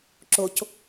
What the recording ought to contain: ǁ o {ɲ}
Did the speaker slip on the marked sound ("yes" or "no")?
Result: yes